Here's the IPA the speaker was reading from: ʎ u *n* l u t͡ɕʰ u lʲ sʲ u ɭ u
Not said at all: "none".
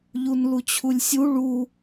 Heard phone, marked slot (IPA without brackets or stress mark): n